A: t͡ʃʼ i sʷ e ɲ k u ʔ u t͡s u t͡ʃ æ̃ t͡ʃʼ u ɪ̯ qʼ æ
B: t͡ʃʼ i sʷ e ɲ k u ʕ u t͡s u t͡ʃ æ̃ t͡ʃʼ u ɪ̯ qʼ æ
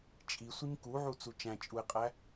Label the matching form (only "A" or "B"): B